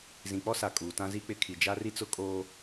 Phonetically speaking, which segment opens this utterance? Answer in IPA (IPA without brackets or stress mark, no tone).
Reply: z